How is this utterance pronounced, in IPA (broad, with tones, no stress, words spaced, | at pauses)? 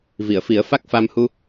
vi˨˩˨ə̯fi˨˩˦ə̯ fa˦˥k̚fa˧mhu˧